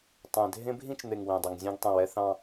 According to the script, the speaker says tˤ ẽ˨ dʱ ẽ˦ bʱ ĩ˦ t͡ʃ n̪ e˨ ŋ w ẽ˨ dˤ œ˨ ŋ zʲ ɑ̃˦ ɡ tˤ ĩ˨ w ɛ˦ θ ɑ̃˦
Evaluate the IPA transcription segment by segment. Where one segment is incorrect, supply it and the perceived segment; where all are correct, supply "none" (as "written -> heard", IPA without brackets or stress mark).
none